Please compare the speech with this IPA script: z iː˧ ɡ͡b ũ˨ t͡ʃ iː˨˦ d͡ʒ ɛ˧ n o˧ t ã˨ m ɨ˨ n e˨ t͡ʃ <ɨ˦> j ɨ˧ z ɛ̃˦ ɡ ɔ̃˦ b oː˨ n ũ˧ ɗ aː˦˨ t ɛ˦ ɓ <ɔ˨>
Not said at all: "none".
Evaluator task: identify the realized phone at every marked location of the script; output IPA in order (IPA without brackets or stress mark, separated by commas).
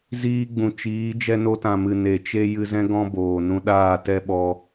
e˦, ɔ˧